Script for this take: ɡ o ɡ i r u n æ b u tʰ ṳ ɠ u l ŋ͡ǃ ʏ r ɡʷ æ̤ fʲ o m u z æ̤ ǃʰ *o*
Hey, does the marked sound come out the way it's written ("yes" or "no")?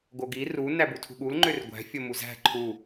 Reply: no